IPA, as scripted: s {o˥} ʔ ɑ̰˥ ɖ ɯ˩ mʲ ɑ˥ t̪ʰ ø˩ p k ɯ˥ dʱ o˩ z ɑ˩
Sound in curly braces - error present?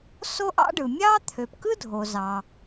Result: no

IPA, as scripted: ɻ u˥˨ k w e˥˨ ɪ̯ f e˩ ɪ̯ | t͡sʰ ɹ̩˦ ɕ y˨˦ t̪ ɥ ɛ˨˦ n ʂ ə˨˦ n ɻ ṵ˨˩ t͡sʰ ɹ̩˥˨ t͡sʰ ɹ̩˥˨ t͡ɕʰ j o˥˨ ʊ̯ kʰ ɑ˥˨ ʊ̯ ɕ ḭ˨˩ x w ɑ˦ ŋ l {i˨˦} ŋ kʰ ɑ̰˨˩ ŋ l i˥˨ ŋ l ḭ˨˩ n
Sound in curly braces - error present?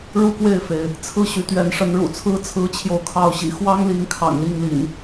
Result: no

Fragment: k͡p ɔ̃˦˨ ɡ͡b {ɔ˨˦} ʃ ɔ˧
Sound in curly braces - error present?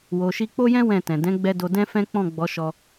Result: no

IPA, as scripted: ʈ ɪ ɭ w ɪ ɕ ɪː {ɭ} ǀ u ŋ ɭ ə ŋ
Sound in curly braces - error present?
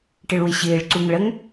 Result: no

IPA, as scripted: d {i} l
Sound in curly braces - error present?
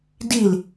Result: no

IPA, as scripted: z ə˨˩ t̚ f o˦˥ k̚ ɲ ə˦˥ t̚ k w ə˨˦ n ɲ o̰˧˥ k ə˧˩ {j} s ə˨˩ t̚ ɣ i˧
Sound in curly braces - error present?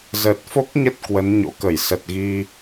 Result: no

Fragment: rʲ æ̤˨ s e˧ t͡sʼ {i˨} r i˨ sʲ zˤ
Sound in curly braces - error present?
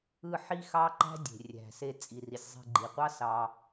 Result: no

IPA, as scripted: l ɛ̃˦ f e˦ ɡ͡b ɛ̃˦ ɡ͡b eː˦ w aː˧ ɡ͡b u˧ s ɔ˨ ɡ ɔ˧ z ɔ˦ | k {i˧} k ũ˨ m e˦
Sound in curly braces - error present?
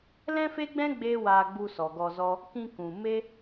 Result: yes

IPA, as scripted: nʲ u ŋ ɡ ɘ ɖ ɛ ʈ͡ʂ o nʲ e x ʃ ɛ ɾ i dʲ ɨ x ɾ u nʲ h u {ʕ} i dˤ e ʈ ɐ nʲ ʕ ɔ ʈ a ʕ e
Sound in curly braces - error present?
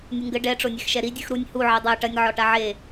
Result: no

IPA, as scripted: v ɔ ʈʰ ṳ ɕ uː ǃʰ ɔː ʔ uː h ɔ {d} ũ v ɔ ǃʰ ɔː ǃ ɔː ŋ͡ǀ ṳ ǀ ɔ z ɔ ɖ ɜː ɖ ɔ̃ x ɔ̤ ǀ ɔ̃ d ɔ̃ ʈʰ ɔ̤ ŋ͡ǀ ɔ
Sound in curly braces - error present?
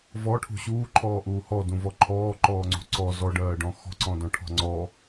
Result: no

